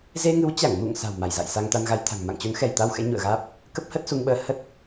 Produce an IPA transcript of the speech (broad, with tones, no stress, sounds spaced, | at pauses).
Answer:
z e˧ ŋ ɨ˨˦ w t͡ɕ a˧˩ ŋ m ṵ˧˨ ŋ s a̤˨˩ w m a˧˩ j z a̰˧˨ j s a˧ ŋ t̪ a˧ n ɣ a˧ j t̪ʰ a̤˨˩ ŋ m a̰˧˨ ŋ t͡ɕ o˨˦ n x ɛ˧˩ j t̪ a˧ w x ɛ̰˧˥ ɲ ṵ˧˨ ə̯ ɣ aː˦˥ p̚ | k ə˦˥ p̚ h ə˦˥ t̚ s u˧ ŋ ɓ əː˧ h ə˦˥ t̚